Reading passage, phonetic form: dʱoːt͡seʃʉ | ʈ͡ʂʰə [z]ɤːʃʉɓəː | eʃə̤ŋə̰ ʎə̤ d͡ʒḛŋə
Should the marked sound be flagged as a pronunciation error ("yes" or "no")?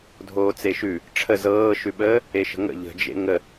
no